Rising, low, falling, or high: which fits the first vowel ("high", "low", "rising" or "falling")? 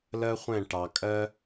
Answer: high